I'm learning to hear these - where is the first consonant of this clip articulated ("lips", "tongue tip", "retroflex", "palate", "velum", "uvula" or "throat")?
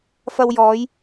lips